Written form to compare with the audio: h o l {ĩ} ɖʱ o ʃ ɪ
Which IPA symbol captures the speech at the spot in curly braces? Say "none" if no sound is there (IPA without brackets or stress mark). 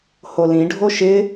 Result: ĩ